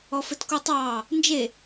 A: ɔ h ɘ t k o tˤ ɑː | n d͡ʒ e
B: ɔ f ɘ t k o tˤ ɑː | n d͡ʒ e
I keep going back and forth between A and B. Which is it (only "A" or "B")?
B